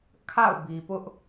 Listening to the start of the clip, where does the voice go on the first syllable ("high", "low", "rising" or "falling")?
falling